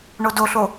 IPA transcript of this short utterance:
ɳodoɬo

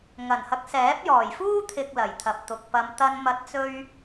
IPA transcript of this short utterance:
ŋɐ˨˩n hɐ˨˥k̚sɛː˨˥p̚jɔː˨˩jfuː˥ t̪ʰɪ˨k̚ lɐ˨˩jt̪ʰɐ˨p̚t̪ʊ˨k̚pɐ˧m t̪ɐ˧n mɐ˨˥t̚t͡sɵ˧ɥ

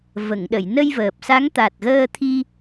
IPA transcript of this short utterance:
və˨˩˨ŋɗə˨˩˨j nə˧jvəː˨˩p̚sa˧˥ŋ t̪a˨˩t̚ɣəː˧t̪ʰi˧

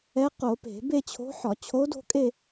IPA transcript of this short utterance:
ɛ˧˥qo˧˩˧ pe̤˧˩˧ be˥˧t͡ɕʰo̤˧˥ħɒ˧˩˧ t͡ɕʰo˧˥do̤˥˧kʼe˥˧

